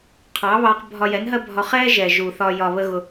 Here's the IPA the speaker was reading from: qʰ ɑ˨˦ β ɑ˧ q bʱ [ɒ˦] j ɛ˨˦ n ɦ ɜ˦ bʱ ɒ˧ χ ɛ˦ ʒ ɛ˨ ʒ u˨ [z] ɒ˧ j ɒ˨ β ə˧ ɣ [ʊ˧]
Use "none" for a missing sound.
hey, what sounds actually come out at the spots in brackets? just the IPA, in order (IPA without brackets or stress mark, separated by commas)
ɒ˧, θ, ʊ˧